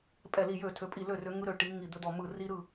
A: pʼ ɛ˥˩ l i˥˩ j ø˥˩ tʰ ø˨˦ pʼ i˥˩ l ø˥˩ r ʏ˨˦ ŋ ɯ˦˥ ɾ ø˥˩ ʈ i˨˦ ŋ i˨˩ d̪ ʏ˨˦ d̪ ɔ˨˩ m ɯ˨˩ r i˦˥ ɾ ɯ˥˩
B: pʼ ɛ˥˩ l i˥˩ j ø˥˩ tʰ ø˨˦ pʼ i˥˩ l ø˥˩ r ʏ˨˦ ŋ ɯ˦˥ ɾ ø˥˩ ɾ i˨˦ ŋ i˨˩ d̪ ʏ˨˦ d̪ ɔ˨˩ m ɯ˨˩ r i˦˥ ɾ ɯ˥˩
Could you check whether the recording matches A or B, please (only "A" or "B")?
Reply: A